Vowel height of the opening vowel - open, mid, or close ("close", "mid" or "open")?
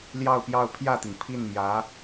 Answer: open